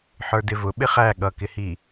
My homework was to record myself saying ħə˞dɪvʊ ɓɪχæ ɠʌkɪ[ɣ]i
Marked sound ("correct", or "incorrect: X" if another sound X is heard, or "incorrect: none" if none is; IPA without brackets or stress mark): incorrect: h